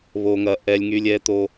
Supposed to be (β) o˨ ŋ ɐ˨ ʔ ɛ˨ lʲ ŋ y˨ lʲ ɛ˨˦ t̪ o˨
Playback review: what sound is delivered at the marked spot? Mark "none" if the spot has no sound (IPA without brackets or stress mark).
β